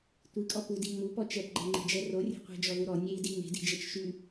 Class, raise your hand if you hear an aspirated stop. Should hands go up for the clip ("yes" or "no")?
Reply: no